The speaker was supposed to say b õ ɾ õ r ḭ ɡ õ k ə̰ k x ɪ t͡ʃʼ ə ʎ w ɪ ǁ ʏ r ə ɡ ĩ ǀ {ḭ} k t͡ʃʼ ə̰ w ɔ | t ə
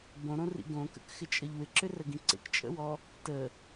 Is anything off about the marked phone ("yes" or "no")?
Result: yes